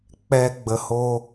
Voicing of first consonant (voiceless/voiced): voiceless